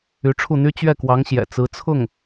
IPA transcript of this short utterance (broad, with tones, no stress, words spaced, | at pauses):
y˧˥ʈ͡ʂʰu˥˩n̪y˥ t͡ɕɥɛ˥˩kwɑ˧˥ŋɕjɛ̰˨˩ t͡sɹ̩˧˥t͡sʰʊ˥˩ŋ